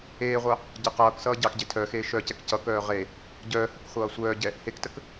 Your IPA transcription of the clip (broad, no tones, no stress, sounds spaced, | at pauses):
eː ʁʷ ɑ | ɟ ə q ʌː k s ʌː ɟ ɑ k ɟ e tʰ œ x eː ʃ œ c ɛ k c ʌ k œː ʁ e | ɟ œː h ə k χʷ ʌː sʷ œː ɟ ɛ | h e k t ə k